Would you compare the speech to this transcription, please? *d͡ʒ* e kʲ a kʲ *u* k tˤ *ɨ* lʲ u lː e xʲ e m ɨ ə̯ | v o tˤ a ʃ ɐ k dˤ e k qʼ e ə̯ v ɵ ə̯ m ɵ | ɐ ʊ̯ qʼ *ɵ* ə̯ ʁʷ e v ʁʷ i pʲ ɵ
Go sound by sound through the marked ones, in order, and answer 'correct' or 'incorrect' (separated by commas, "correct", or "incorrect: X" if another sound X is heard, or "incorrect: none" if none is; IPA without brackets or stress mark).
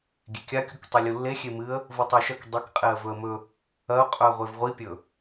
incorrect: ɡʲ, correct, correct, correct